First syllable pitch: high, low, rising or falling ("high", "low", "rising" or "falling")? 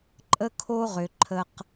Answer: high